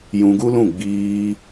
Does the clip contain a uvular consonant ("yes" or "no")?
no